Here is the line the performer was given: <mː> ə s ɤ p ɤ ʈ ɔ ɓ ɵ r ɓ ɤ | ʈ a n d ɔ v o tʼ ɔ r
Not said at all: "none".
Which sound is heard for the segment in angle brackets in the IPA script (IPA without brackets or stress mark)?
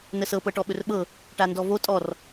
n